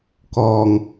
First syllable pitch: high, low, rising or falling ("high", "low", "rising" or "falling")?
low